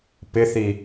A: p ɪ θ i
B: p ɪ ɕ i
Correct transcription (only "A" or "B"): A